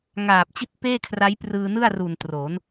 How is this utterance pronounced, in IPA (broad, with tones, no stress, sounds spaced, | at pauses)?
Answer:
ŋ aː˨˩ p̚ t͡ɕ i˥˩ t̚ p eː˥˩ kʰ r a˦˥ j p r ɯː˧ n ɯ˥˩ a̯ r u˨˩ n t r o˩˦ n